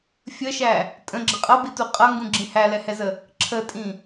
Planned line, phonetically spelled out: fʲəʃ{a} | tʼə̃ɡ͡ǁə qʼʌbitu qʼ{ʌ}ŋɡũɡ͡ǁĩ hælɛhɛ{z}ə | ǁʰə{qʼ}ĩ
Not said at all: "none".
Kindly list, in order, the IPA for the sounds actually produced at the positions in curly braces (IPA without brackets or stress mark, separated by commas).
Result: æ, ʌ, z, tʼ